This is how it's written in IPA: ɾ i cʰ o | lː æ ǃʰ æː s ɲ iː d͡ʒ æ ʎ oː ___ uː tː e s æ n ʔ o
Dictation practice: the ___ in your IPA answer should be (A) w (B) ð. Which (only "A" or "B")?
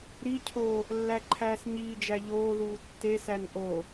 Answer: B